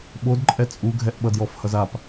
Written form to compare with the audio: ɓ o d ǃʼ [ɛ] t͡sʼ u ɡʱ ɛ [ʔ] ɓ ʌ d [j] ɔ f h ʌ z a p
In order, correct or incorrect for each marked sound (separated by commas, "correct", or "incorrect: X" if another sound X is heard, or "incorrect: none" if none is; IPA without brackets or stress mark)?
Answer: correct, correct, correct